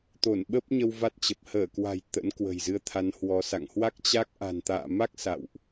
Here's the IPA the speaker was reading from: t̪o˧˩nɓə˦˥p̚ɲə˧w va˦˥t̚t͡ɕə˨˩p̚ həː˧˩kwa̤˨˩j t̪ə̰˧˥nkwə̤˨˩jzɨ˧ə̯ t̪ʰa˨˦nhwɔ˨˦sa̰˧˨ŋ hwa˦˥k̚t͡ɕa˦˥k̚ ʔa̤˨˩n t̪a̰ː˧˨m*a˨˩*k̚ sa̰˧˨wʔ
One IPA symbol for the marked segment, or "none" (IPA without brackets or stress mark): a˦˥